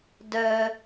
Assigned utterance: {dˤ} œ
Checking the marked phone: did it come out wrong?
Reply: yes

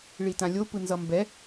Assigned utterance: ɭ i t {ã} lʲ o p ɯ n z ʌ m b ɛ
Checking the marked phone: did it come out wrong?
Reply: no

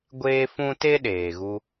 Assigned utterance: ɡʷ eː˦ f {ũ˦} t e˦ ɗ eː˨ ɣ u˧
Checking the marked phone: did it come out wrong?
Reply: no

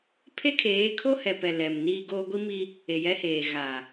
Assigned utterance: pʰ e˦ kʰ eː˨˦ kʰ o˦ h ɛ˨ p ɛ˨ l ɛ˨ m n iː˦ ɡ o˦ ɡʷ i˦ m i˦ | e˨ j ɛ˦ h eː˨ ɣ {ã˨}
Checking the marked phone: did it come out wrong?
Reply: yes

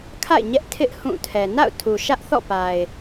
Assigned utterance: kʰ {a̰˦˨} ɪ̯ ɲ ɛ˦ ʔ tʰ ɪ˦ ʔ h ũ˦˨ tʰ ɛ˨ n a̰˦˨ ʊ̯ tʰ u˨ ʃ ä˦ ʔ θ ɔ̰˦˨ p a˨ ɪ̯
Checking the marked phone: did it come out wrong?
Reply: no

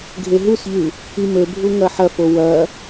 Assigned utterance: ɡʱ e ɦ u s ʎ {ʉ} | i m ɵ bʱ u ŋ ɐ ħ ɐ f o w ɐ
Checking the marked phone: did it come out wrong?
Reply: no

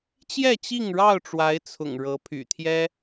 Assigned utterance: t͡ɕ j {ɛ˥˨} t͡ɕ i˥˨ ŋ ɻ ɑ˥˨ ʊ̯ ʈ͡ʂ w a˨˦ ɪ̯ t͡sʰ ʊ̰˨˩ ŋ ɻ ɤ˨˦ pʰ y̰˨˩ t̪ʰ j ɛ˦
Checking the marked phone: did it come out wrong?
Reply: no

